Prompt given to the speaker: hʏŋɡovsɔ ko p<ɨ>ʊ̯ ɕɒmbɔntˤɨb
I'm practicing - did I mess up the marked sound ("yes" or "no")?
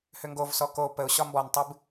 yes